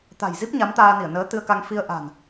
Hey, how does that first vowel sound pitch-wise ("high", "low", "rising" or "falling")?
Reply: low